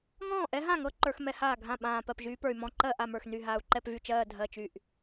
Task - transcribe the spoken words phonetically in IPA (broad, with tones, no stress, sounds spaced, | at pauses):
ŋ ɔ̃ː˥˩ ʔ ɛ˧˥ ɦ ã˥˩ ŋ ɤ˧˥ ǃ ə˞˧˥ x m ɛ˧˥ h aː˥˩ ɡʱ ã˥˩ ɓ ãː˧˩ p ɜ˥˩ p ʒ yː˧˥ p ə˞˧˩ y̯ m ɔ̃˧˥ ǃ ɜ˥˩ ʔ a˥˩ m ə˞˥˩ x n y˧˩ ɦ aː˧˩ u̯ ǃ ɛ˥˩ p v y˥˩ t͡ʃ ɜː˧˩ dʱ ɜ˧˩ t͡ʃ y˧˩ ʔ